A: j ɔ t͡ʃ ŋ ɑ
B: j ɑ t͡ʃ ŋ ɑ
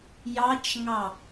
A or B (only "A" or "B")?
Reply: B